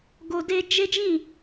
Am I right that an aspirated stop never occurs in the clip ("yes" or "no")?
yes